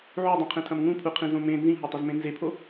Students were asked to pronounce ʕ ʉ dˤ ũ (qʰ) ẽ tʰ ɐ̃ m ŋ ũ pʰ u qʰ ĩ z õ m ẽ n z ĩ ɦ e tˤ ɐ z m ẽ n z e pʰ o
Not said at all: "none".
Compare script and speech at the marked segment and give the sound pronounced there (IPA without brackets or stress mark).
qʰ